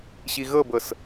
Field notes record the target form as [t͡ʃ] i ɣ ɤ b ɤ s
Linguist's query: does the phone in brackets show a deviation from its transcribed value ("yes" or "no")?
yes